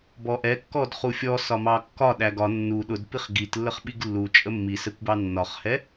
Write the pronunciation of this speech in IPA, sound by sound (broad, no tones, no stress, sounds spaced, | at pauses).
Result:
b ɔ ʔ ɛ kː ɔ d χ u fʲ ɔ s ɒ m ɑ kː ɒ ɗ æ ɡ ɒ nː u ɗ ʊ d p i χ ɡ i t lː ə χ ɓ i ɡ lː u t͡ʃʼ ə mː i s ɛ kʷ b ɑ nː ɒ χ h ɛ